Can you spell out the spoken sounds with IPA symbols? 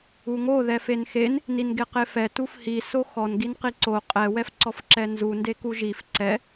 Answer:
u ŋ o ð ɛ f e n x e n | n i n ɡ e q e f ɛ t u f h i s o x ɔ n ɡ i n q i ǀ o qʼ ɛ w ɛ f ǀ ɔ f ǁ ɛ n z u n d e k u ʒ i f ǀ ɛ

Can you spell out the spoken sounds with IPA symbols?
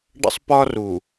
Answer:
ɖ ə̰˦ sˤ p ɒ˦ r u˨

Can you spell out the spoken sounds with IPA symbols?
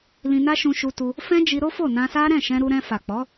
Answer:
l ĩ˧ n a˦ ʃ ũ˧ ʃ u˧ t u˧ | f ɛ̃˦ d͡ʒ i˧ ɾ o˦ f o˦˨ n ã˧ s a˦ ɾ ɛ̃˦˨ ʃ ɛ̃˧ ɾ u˧ ɾ ɛ̃˧ f a˨ k͡p ɔ˨˦

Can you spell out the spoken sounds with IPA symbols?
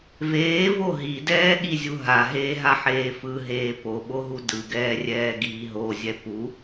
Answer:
v eː v o ɦ i d ɛː ɠ i zʲ u ɦ a ɦ eː ɦ a ħ eː f ɯ ɦ eː p o ɓ o ɦ u d ɯ ɡ ɛː rʲ ɛː ɡ iː ɦ o zʲ ɛ p u

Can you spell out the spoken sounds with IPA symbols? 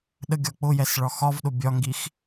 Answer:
ɗ ə ɡʲ ɒ k͡p ʊ j ɛ s ɭ ɒ x ɒ v ɗ ʊ bʲ ɒ ŋ ɡ i x

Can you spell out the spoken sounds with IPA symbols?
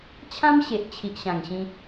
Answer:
t͡ɕʰ ã˦ m ɕ e˨ ʔ t͡ɕʰ i˨ ʔ ɕ ã˨˩ ŋ ɕ ĩ˧

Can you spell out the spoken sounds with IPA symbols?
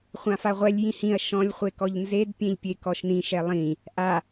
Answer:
χʷ ã f a ʁʷ ɛ lʲ j ĩ h ĩ ɐ̯ ʃ ɔ̃ lʲ χʷ e k ɔ ʎ n z e d pʲ ẽ ʎ pʲ e k ɔ ʃ n ĩ ʃ ɛ lˠ ĩ | ʔ a

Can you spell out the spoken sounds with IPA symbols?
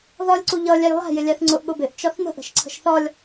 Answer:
ð ɒ lʲ ǀ u ʎ ʌ lʲ æ j lˠ æ̤ j ɪ lʲ æ θ ŋ͡ǀ ʊ ʔ ɠ ʊ b ɪ ʔ t͡ʃ ɒ θ n ə̤ ʔ ə̤ ʃ ǀʰ ə̤ ʃ θ ɒ lʲ

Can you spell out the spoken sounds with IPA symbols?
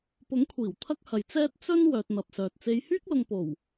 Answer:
p ʊ˨˥ ŋ kʷʰ iː˨˩ w t̪ʰ ɐ˥ k̚ h ɐ˨ j t͡s ɛː˥ t̚ t͡s ɵ˥ n w œː˧ t̚ n̪ ɐ˨ p̚ s œː˨ t̚ t͡s e˨˧ j h yː˥ k̚ l ʊ˨ ŋ p o˨˩ w

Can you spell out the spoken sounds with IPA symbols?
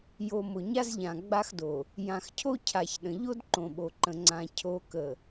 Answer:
j o˨ m ʊ˨ ɲ a˦ z ʎ ã˨ ɡ͡b a˦ x d o˨ | j ã˨ x cʰ o˦ cʰ a˨ ç ɗ ə̃˨ ʎ o˦ d ǃ õ˨ ɓ o˨ ǃ ə̃˨ ŋ͡ǀ ã˨ cʰ o˨˦ k ə˨

